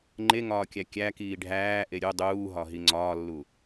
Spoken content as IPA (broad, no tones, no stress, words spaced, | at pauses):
ŋ͡ǃeŋɒːkʲæ kʲækiː ɖʱæːʔe ɾʲu dˤuːɦɒɦi ŋ͡ǀɒːlːu